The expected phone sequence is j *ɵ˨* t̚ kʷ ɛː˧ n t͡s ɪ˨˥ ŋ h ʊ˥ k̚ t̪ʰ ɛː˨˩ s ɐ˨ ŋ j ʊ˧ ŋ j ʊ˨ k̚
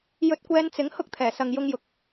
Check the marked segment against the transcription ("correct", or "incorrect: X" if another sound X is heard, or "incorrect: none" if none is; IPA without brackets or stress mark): incorrect: ɵ˧